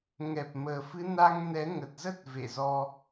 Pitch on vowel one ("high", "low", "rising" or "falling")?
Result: low